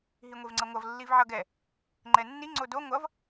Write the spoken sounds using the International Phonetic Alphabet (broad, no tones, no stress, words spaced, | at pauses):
ɦiŋʷevŋ͡ǀʌŋʷʌv lːivʕʌɡɛ | ŋ͡ǃɛnːi ŋ͡ǀodo ŋʷʌv